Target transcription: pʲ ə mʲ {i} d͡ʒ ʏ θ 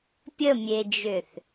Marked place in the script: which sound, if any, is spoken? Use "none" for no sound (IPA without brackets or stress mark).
e